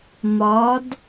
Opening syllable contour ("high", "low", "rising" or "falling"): rising